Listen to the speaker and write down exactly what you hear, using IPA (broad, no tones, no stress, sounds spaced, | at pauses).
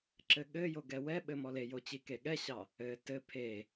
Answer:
ǁ ɘ ɠ ɘ j o ɡ ɛ w ɛ ɓ ɘ m ɔ l e j o t͡ɕ i k e ɠ ɛ ɕ ɑ | ɘ t ɘ pʰ e